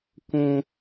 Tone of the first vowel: low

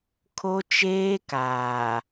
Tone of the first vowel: high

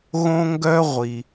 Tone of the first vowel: high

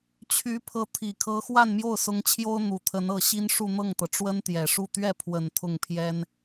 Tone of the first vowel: rising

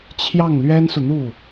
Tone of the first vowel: falling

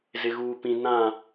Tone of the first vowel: low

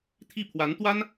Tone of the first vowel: falling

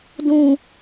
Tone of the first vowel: low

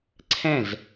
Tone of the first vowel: falling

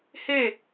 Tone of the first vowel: falling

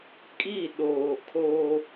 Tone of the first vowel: falling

